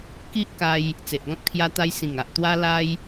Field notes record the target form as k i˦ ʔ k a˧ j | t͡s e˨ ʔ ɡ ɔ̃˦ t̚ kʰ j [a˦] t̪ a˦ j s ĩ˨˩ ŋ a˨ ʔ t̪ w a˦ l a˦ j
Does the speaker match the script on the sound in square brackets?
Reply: yes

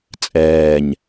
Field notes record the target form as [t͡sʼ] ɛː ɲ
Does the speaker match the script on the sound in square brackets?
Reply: yes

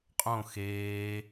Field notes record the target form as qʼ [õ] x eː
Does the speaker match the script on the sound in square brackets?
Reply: yes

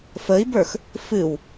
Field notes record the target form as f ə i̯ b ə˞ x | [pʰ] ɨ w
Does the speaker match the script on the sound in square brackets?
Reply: no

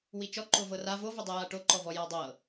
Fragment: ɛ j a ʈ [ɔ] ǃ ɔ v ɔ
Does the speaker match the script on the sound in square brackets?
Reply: no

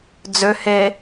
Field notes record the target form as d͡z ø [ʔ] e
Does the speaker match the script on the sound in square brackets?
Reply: no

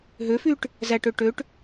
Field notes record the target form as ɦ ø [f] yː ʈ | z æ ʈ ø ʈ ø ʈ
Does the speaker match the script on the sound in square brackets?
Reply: yes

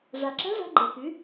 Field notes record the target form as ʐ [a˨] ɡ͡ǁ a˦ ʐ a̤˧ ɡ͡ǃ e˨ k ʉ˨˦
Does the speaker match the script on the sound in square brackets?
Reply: yes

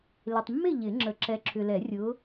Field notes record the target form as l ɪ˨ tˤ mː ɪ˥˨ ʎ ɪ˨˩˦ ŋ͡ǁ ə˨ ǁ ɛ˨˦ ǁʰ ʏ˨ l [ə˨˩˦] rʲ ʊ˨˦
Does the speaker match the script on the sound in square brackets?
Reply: no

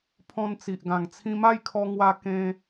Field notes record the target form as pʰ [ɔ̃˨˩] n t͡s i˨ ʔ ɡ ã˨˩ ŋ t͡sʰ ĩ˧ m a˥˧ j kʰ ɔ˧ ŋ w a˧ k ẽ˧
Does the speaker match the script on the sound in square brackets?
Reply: no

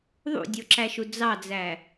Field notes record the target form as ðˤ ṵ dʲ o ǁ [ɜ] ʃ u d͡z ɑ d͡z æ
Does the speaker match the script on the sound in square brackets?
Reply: no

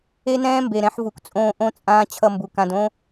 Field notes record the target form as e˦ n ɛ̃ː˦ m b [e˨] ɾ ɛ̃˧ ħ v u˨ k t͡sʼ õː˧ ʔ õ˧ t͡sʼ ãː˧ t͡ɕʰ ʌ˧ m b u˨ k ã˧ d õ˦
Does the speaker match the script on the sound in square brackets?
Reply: yes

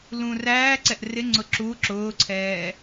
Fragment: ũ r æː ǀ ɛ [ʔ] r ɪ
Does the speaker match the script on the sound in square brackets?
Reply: yes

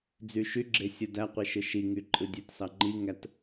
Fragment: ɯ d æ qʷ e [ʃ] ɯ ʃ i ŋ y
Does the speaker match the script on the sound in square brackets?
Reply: yes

